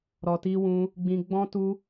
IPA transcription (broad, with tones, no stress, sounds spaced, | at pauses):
ɾ ɔ˧ t i˦ w ũ˦ | ɡ͡b ĩ˧ ɡ͡b ɔ̃˦ t u˦